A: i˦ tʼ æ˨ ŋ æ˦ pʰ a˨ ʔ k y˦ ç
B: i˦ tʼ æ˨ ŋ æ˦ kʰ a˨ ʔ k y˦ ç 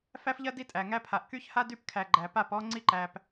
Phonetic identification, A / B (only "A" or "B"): A